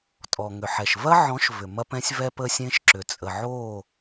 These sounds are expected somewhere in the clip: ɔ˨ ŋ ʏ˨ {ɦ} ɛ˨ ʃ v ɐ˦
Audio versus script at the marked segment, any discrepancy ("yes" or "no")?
yes